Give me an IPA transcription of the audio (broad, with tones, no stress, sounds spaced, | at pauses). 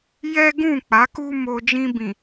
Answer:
j ɛ˦ ɡ ũ˦˨ k͡p a˨˦ k u˦ m o˧ d͡ʒ ĩ˧ b ĩ˨